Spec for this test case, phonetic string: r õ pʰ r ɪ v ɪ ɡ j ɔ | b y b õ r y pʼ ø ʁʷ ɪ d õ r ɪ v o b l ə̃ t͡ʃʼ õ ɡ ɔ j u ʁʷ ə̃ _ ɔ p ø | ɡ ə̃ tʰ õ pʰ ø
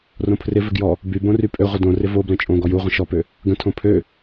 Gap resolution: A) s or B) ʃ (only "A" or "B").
B